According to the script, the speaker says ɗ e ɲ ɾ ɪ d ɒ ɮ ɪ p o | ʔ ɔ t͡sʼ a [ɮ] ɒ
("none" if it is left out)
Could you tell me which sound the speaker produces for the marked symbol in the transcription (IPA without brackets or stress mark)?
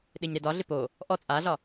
ɮ